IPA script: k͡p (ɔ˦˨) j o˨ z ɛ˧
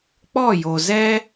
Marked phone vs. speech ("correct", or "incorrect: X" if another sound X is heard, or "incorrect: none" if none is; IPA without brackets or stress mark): correct